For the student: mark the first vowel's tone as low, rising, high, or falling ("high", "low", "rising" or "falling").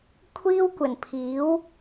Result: high